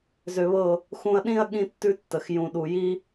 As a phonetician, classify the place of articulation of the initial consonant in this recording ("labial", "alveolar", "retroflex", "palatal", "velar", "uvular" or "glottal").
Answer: alveolar